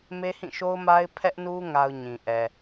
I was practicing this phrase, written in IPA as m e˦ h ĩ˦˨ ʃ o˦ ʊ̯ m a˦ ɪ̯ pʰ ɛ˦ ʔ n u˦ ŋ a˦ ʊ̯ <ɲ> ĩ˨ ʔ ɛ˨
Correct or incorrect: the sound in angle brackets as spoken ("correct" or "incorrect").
correct